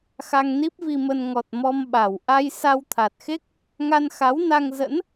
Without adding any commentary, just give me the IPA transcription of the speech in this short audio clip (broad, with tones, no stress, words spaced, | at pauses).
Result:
xa˧ŋni˦˥p̚vi˧mə˧n ŋɔ˨˩t̚ mɔ˧mɓa˨˩w ʔa˧j sa˧wt̪ʰa˨˩t̚xe˦˥k̚ | ŋa˧nxa˨˦wna˧ŋ zə̰˧˥n